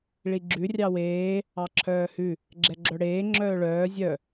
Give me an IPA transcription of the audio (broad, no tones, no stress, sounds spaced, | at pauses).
ɭ i ɡ͡ǁ ʉ rʲ ɑ w eː | ɑ ǁʰ œː h ʉ | ɡ͡ǁ ɛ ɡ͡ǁ œ ɽ eː ŋ͡ǁ œː ɭ œː zʲ œ